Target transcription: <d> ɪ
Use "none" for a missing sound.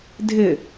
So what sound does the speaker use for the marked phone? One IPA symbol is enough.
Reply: dʱ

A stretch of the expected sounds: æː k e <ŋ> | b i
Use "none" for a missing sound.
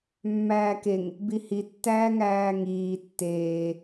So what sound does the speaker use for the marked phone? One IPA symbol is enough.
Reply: ŋ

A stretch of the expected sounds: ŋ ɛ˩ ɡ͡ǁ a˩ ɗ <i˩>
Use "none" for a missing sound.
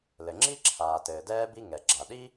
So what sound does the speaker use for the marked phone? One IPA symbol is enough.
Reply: i˥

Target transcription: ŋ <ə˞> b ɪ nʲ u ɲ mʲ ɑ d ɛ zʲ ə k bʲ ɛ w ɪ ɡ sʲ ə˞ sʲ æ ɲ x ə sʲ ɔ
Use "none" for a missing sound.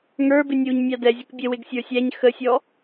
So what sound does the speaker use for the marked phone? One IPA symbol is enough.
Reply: ə˞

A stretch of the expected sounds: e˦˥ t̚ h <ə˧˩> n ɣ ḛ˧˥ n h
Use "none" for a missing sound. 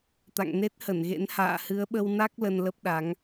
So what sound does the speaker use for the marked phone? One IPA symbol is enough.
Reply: ə˧˩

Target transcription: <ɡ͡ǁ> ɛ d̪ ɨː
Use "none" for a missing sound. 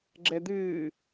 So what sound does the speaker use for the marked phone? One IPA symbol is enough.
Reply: ɡ͡ǁ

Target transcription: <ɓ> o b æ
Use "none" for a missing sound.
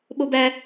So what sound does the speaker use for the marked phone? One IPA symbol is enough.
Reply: ɓ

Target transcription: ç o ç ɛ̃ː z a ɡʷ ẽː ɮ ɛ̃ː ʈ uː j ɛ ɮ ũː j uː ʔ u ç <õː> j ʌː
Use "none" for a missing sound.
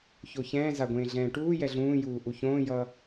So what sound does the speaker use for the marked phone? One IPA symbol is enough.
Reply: õː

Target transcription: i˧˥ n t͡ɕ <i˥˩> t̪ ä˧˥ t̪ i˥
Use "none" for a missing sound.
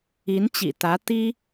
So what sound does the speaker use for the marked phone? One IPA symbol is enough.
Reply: ḭ˨˩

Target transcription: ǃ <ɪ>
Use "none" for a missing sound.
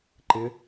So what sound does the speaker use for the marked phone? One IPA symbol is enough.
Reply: ɪ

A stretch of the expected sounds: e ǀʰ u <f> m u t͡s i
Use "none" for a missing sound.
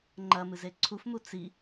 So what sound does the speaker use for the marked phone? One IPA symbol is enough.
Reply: f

